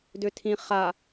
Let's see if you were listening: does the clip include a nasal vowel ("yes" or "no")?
yes